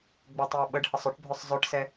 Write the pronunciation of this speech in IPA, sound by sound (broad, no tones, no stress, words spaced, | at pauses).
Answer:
ɡ͡bøtˤjʊɓəɖhəsˤ ʏʈbʱʏsˤ zˤøʈsɛ